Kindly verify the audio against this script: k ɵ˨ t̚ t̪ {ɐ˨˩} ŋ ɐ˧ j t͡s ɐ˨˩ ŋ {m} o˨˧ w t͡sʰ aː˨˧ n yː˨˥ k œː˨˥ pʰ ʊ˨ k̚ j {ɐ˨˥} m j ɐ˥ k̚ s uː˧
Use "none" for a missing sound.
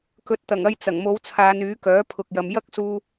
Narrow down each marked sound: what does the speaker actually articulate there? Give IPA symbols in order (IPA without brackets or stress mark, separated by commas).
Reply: ɐ˨˩, m, ɐ˨